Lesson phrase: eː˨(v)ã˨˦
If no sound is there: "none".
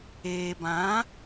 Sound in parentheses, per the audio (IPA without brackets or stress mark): b